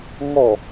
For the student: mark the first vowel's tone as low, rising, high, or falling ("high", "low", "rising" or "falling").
falling